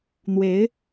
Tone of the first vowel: rising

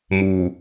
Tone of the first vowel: low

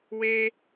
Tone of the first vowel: high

